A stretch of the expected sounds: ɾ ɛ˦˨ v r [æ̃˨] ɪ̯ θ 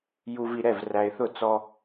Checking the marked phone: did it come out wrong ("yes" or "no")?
yes